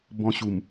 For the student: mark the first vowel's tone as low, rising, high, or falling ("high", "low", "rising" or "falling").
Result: high